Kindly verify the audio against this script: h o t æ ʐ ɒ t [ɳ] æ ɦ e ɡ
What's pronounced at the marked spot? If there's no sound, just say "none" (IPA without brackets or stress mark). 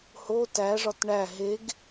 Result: ɳ